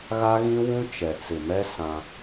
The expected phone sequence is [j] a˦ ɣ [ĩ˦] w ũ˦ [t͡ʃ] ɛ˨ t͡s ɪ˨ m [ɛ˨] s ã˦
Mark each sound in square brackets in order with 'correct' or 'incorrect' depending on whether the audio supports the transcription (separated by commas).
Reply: incorrect, correct, correct, incorrect